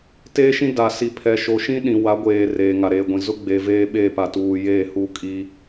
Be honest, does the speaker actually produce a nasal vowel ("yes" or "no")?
yes